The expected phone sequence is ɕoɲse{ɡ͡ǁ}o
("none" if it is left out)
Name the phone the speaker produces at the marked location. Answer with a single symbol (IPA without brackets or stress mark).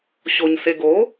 ɡ